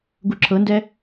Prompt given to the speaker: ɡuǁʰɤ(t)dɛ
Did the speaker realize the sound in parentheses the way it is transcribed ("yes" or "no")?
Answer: no